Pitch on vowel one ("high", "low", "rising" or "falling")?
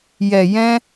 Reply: low